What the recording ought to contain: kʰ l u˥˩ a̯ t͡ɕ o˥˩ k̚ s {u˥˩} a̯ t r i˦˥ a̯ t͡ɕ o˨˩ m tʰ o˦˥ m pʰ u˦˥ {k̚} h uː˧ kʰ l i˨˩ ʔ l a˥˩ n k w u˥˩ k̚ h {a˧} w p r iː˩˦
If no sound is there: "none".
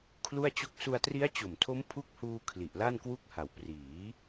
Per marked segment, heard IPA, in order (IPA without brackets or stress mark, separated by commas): u˧, k̚, a˨˩